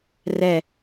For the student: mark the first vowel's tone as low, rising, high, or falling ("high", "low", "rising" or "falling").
low